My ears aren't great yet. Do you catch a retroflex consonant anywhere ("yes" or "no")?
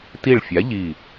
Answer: yes